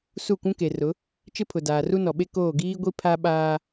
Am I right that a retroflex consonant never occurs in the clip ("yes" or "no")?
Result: yes